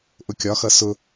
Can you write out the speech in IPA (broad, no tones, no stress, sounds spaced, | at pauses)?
ʔ ʊ kʲ ɒ x ʌ s ʊ